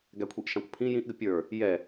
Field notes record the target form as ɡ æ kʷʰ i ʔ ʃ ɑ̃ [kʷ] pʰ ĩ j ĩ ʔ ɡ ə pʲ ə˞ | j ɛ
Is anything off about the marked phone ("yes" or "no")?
no